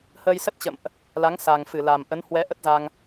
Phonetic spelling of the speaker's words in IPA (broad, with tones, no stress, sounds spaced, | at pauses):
h əː˧ j s ə˦˥ t̚ t͡ɕ ə̰˧˨ m ʔ | l a˨˦ ŋ s a˨˩ ŋ f ɨ˧˩ l a˨˩ m ʔ ə˨˦ n h w ɛ˨˦ ʔ ə˦˥ t̚ z a˧ ŋ